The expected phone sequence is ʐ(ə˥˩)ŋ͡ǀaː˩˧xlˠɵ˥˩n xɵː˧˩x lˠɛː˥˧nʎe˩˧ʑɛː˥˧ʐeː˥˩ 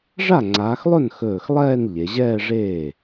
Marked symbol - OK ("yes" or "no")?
no